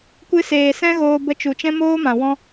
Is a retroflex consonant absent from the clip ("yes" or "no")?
yes